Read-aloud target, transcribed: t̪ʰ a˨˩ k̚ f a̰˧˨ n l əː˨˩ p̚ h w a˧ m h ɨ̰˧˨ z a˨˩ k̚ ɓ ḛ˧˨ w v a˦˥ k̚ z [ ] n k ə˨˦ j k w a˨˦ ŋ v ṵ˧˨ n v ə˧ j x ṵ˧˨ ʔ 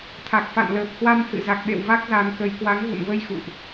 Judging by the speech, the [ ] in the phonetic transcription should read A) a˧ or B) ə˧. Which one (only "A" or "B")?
A